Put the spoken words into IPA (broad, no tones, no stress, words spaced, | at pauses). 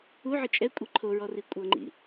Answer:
uʕɯ t͡ʃʼɛkʷʼi ǃʰoɹɔri kʷʼɤŋ͡ǃḭ